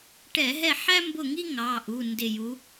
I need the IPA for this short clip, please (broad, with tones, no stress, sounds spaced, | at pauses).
ʈ ɛ˧˩˧ ɦ ɛ˦˨ ħ æ˥ m b ʊ˦˨ ŋ i˥ ŋ ɑ˩˧˩ ʔ u˩˧˩ n d ɪ˦˨ j u˧˥